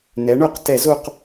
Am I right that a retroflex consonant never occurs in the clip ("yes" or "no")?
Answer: no